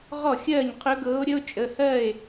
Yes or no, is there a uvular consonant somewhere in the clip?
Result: yes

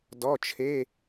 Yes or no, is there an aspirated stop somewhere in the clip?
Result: yes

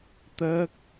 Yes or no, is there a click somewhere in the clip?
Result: no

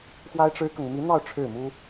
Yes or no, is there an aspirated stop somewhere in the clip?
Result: yes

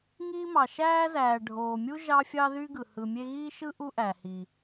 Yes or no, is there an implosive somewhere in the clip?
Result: no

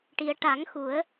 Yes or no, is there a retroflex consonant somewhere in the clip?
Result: yes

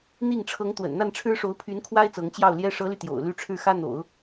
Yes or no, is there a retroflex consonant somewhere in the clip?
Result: yes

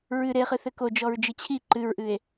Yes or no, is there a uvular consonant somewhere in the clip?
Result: yes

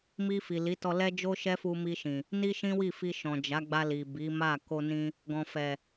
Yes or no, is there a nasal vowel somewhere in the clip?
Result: yes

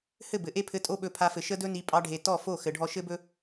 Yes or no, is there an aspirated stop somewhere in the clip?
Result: yes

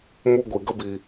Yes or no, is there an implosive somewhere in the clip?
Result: no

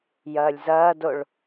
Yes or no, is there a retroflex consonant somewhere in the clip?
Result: yes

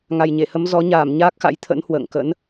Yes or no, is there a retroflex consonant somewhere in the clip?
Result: no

